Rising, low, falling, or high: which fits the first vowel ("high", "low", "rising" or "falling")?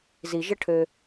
low